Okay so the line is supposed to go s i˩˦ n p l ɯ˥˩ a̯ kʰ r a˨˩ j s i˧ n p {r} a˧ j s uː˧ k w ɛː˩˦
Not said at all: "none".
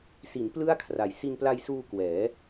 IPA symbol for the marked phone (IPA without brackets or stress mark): l